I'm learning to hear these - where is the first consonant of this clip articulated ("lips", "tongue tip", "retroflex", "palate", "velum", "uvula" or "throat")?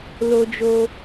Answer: tongue tip